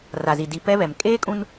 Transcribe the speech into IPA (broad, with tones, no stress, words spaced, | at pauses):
ra˨zi˨ di˨ pɛ˦βɛ˨m kʼeː˦kʼũ˦n